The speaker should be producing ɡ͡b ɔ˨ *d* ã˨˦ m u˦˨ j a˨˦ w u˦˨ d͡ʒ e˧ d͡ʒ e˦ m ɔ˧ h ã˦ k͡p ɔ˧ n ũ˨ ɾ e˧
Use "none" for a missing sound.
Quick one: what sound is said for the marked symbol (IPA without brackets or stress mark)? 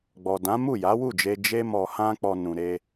d